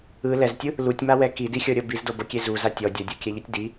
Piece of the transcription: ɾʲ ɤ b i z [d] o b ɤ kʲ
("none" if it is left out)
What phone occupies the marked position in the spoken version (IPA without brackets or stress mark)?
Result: d